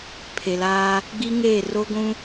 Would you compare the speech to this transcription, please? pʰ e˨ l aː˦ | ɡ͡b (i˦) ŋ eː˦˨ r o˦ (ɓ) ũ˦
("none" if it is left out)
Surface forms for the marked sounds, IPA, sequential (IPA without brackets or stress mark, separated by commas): i˦, ɡʷ